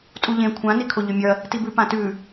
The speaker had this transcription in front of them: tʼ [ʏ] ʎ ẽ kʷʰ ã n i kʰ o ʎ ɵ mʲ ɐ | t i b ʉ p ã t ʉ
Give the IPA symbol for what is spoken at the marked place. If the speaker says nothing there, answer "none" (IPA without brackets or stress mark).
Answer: u